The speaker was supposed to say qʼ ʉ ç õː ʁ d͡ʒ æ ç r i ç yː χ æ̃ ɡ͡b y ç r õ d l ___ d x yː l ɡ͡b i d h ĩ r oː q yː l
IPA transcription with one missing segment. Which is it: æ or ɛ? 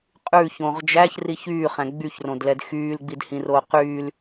ɛ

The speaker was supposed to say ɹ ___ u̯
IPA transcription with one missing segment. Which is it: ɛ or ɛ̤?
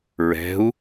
ɛ̤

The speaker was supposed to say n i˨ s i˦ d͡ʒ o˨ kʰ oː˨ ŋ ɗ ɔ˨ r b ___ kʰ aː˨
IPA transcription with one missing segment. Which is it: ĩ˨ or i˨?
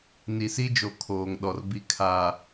i˨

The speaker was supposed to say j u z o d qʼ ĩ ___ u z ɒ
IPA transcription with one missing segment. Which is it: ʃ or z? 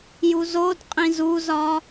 z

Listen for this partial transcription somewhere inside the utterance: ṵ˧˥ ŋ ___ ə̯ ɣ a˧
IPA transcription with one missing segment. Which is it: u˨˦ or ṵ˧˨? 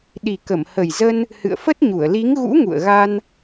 ṵ˧˨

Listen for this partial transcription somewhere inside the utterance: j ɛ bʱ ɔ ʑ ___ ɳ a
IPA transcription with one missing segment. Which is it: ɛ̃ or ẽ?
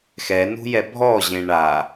ẽ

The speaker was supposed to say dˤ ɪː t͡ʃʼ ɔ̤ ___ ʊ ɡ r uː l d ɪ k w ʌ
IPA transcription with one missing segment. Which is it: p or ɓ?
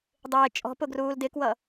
p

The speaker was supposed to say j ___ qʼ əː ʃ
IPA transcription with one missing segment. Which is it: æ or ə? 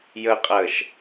ə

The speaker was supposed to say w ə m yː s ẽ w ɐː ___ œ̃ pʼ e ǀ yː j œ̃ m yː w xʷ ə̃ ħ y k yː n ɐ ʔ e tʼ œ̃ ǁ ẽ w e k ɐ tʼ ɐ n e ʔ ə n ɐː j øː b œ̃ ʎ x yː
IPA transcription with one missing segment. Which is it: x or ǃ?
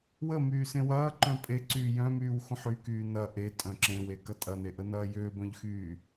ǃ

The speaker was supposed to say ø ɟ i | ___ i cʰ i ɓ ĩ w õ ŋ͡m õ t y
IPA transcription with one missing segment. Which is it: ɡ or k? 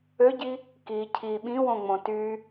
k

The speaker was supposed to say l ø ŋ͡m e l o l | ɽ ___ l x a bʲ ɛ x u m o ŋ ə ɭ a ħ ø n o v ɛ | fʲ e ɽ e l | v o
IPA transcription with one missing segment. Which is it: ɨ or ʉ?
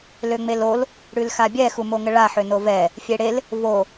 ʉ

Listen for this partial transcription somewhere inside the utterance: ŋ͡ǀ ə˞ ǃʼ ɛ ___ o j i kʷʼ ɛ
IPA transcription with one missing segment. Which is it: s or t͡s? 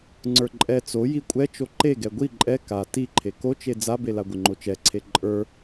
t͡s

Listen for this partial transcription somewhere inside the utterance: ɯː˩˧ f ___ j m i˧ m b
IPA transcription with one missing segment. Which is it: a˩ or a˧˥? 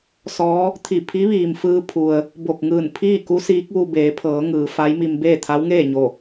a˧˥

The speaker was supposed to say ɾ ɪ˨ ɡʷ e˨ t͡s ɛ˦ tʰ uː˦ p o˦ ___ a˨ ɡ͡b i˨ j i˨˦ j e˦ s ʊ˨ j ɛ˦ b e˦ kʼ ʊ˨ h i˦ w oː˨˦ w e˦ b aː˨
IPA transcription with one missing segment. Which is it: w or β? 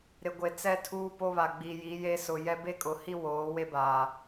β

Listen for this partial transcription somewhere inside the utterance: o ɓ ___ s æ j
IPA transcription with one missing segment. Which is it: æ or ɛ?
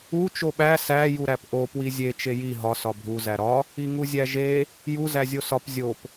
æ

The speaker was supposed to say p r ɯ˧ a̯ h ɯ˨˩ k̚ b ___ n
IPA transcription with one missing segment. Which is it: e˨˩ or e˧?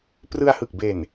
e˨˩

